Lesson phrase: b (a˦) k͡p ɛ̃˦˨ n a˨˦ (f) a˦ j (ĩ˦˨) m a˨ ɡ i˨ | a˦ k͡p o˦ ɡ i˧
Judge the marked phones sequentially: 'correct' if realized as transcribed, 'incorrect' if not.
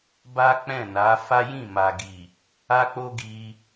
correct, correct, correct

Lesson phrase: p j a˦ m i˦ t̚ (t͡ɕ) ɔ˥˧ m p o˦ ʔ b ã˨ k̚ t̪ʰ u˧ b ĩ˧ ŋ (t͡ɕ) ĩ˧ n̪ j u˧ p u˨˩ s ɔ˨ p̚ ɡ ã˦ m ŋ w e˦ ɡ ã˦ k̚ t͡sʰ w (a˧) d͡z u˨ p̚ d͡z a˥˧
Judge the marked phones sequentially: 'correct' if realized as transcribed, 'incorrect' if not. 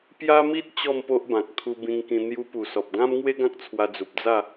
correct, incorrect: k, correct

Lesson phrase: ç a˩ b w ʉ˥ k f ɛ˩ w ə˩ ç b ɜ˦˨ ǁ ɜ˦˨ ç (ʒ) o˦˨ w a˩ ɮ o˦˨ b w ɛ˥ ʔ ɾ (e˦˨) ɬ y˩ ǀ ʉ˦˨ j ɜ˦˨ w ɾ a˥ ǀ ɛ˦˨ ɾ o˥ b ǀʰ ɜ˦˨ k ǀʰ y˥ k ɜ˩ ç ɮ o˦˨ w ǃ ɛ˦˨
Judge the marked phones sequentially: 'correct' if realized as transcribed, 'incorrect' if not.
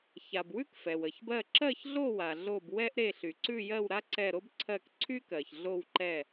incorrect: ɮ, correct

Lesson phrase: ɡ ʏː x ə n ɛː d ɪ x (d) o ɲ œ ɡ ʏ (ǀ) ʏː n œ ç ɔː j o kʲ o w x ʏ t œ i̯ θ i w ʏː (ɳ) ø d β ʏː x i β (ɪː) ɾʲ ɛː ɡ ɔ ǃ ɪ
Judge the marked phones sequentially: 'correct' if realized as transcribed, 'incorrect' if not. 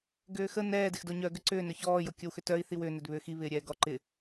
correct, correct, incorrect: n, correct

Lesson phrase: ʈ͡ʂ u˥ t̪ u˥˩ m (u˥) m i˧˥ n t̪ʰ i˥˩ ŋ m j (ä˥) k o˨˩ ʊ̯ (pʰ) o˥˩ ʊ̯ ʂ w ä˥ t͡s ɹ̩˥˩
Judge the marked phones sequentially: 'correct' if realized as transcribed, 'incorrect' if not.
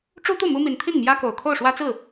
correct, correct, incorrect: kʰ

